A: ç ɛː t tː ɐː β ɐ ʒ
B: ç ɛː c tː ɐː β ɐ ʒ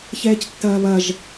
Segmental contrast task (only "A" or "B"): B